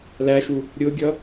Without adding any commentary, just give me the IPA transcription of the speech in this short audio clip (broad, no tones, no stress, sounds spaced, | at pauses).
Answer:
l æ ʃ u | ɾʲ ʊ ɡʲ ʌ